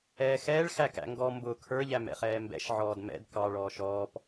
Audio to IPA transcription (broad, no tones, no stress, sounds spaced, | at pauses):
ɛː x ɛː ɭ x æ k æ̰ ŋ ɡ ɔ m b ʊ kʰ ə˞ ʎ æ m ɛ̰ χ ɛː m b ɛ̰ ʃ ʕ ɔː d m ɛ̰ d k ɑ ɭ ɔː ʃ ɔː p